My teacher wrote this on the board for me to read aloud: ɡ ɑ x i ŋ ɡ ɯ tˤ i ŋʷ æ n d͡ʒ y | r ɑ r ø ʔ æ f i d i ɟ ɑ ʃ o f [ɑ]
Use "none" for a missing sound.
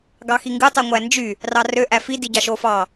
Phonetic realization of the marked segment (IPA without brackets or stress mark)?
ɑ